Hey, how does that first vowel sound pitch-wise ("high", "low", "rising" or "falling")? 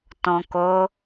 low